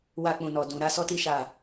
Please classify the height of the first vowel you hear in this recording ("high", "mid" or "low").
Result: low